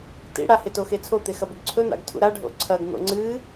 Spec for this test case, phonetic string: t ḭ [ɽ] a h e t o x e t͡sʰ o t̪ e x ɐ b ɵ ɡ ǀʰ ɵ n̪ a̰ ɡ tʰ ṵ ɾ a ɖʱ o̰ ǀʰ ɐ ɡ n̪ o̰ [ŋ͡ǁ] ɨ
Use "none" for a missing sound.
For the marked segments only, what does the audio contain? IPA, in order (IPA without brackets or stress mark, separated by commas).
ɽ, ŋ͡ǀ